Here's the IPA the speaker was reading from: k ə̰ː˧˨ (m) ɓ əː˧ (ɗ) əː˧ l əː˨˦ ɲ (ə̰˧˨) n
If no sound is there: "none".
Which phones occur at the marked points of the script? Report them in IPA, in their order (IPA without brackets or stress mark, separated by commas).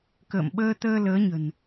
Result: m, t̪, ə̤˨˩